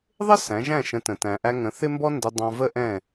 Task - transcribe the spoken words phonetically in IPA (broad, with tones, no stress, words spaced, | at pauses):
ðˤɪ˥ sæ̃˩˥ ʒæ̃˥˩ʃə̃˩˥ tə̃˩tæ̃˩ʔæ˧ ŋə̃˩˥ θɪ˥mbɔ˥ ndɪ˧ dˤɑ̃˧və˥ʔɛ̃˥˩